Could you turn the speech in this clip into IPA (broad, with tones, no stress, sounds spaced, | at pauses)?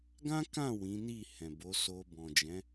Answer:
ɡ ã˦ k ã˦˨ w ĩ˨˦ n i˦˨ h ɛ̃˨ b o˨˦ s o˧ b ɔ̃˨ d͡ʒ ɛ̃˨˦